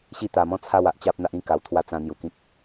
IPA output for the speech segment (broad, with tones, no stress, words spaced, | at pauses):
ɕi˥˧ t̪a˧mɔ̃˥˧t͡sʰa˥˧w a˦ʔ t͡ɕa˦p̚n̪a˦ʔĩ˦ ka˧wt̪ʰwa˥˧ t͡sã˧ n̪ju˧kĩ˦k̚